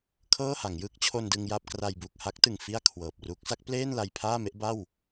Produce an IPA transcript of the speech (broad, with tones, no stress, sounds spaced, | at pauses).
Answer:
kʰ ɤː˥˩ h a˩˦ ŋ j ɯː˦˥ k̚ t͡ɕʰ o˧ n d ɯ˧ ŋ j a˥˩ p̚ k r a˧ j b u˨˩ k̚ h a˦˥ k̚ t ɯ˨˩ ŋ f i˥˩ a̯ kʰ w ɤː˨˩ p̚ r u˦˥ k̚ s a˦˥ k̚ p l eː˥˩ n l a˧ j pʰ aː˥˩ m e˦˥ ʔ b a˥˩ w